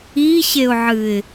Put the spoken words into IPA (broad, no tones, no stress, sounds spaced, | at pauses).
i ɕ e ʊ̯ ʕ ɨ ɪ̯